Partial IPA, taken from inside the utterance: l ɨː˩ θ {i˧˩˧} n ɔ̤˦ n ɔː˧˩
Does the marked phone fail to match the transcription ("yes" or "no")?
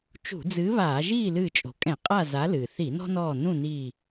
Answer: no